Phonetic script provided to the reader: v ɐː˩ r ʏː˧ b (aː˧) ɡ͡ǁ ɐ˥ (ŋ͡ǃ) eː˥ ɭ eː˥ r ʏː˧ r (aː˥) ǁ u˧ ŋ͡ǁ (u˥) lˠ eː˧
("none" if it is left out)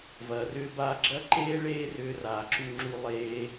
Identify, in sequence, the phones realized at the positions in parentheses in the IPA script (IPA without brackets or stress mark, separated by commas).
aː˧, ǃ, aː˩, u˧